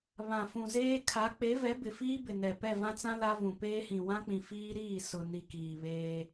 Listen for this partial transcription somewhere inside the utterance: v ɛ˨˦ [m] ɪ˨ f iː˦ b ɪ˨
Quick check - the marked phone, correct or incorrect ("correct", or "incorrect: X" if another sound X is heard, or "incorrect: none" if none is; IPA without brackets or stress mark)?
incorrect: b